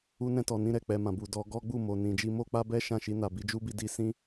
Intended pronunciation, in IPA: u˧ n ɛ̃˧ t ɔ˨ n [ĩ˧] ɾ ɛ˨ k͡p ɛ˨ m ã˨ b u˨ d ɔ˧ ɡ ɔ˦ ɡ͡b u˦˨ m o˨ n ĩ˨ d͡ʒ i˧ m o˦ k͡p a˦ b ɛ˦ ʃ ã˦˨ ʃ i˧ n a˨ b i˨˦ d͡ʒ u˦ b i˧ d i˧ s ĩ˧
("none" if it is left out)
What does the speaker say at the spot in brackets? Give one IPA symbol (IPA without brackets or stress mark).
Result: ĩ˧